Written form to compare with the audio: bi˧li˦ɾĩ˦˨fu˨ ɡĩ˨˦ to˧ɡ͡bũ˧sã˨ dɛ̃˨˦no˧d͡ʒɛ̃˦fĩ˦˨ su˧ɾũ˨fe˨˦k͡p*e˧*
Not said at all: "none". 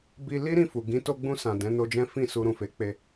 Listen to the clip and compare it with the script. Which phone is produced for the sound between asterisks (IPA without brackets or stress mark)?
e˧